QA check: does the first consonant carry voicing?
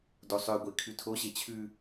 yes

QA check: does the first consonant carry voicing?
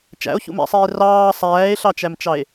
no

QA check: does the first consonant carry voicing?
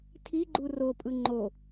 no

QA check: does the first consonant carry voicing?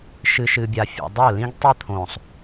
no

